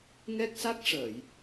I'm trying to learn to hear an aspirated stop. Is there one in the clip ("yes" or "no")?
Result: no